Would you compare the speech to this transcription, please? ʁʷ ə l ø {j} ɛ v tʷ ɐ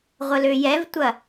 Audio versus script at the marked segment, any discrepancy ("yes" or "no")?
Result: no